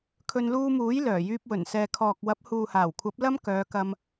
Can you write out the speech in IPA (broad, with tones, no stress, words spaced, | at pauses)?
kʰɵ˧nluː˧muː˨˥j lœː˨˩jyː˧p̚wɵ˨˩nsɛː˨ kʰɔː˨k̚wɐ˨˥p̚ huː˨haː˨˩wkʷʰɐ˨˥p̚ lɐ˥mkœː˨˧kɐ˧m